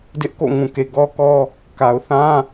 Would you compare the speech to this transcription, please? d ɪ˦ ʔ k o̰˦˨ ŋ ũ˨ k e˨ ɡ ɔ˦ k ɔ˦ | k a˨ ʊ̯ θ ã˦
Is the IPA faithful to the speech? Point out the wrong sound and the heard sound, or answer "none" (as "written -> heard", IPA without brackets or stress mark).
none